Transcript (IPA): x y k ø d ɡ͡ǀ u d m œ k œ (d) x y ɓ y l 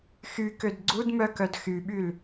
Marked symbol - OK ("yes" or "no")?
yes